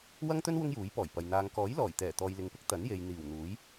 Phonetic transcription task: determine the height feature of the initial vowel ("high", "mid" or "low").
low